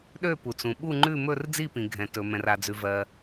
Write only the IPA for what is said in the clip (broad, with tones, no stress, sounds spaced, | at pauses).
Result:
ɗ ø˦˨ p u˩ t͡s ũ˩ ɓ u˦˨ ŋ͡ǃ ʉ˦˨ m ɵ˦˨ r d͡z i˦˨ p ĩ˩ ɡʱ ɛ̃˩ t ɵ˩ m ɛ̃˩ r a˩ d͡z ʉ˩ v ɜ˩